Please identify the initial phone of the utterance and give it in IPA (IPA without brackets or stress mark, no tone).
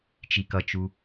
t͡ʃ